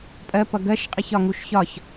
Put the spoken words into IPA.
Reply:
pʼ ɜ p ʌ ɡ ɜ ʃ qʼ i ç ɒ ŋ u ʃ ç ɒ ç

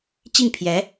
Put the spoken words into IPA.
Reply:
t͡ɕ i˥˩ ŋ pʰ j ɛ˧˥

